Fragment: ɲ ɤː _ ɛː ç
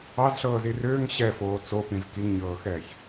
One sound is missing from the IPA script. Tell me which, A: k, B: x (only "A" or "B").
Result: B